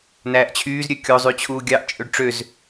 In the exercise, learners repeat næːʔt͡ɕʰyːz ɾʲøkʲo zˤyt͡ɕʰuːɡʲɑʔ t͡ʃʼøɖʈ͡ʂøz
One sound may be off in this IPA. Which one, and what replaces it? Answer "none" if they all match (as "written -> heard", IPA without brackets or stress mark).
none